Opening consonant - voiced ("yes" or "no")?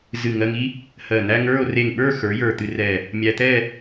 yes